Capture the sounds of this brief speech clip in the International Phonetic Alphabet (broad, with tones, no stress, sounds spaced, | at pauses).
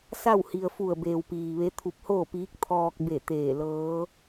s a˥˨ w h i˩ ə̯ f u˧˩ ə̯ b eː˩ w p iː˩ ʋ e˧˥ t̪ʰ u˧ p̚ h oː˥˨ p iː˧˥ k̚ t̪ʰ ɔː˧ k̚ b e˧˩ t̪ eː˧˩ l ɤː˧˥